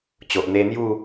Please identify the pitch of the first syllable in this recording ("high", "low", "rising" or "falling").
low